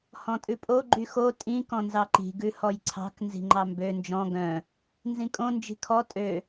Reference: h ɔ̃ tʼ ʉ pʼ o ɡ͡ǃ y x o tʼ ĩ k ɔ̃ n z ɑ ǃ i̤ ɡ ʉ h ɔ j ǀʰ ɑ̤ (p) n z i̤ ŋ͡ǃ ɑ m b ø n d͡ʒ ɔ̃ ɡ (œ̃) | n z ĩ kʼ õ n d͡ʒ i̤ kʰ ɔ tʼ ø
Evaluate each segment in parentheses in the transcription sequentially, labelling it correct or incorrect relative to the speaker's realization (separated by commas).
incorrect, correct